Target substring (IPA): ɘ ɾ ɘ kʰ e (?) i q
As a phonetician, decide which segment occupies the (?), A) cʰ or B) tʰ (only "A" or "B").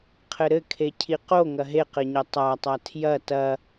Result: A